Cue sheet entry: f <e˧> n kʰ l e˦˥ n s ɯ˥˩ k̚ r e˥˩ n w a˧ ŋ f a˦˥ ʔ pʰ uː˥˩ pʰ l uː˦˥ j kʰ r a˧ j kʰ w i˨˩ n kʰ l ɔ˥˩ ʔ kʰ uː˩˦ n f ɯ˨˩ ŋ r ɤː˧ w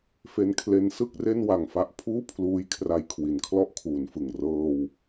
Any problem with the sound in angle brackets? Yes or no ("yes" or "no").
yes